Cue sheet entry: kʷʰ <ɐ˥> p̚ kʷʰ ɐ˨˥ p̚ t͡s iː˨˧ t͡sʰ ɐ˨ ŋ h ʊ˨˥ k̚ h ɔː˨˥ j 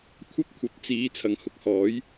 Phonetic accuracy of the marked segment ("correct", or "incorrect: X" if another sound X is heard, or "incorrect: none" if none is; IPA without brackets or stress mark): correct